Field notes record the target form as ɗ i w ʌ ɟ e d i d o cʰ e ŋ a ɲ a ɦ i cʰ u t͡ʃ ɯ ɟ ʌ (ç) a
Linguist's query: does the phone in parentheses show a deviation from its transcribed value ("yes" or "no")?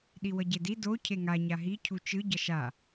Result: yes